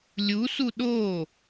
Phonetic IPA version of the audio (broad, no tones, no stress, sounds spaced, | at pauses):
lʲ u s u ɗ o